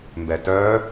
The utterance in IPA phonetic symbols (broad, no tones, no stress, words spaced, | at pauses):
mbɛtœ